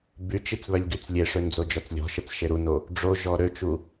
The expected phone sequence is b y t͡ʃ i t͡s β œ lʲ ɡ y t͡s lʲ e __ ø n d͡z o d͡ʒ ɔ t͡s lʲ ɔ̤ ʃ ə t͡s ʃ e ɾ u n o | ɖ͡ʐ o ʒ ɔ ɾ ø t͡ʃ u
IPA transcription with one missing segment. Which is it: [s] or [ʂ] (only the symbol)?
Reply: ʂ